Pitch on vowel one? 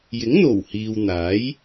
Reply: rising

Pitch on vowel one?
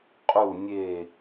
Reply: low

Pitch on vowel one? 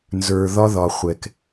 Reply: low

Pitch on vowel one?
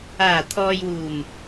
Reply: low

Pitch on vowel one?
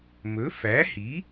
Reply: rising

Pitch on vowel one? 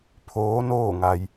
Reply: rising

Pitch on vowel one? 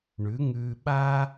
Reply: rising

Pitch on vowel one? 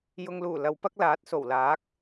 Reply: low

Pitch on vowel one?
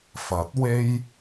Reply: rising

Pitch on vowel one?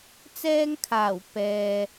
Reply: high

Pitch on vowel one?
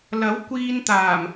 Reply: rising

